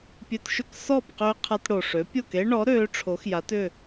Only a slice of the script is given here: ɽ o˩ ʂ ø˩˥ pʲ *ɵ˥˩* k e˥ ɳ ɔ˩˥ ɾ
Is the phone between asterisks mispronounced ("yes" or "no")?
yes